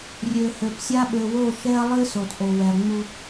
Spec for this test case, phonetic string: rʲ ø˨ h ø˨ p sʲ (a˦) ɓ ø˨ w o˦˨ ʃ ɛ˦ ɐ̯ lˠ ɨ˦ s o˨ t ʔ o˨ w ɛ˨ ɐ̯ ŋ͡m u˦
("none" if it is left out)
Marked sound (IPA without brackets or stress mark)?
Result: a˦